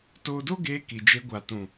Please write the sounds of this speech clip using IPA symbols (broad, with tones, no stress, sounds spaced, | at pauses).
t oː˧ d o˦ ɡ eː˧ k i˨ d͡ʒ e˧ ɡʷ a˨ t ũ˨